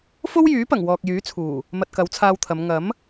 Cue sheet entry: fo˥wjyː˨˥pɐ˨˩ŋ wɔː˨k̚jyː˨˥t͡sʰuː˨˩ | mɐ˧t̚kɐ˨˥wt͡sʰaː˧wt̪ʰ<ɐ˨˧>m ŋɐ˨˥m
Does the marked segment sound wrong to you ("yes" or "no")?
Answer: no